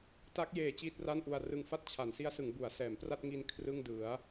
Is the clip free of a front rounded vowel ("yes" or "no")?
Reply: yes